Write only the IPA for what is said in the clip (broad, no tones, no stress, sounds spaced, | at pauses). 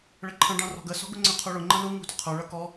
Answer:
ɭ ə ǃʰ ə̃ ɖ ɑ̃ r ɔ̤ ɡ ə s ɔ̤ ɡ ʊ ŋ͡ǀ ə̃ qʰ u ɭ ʊ ŋ͡ǃ ə̃ l u ŋ ṳ d ʊ qʰ ə˞ ɭ ʌ k ɔ